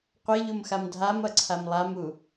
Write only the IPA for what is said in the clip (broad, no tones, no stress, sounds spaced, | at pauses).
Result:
qʷ e ʎ u m x a m dʱ a m ʌ ǀʰ a m lˠ a m u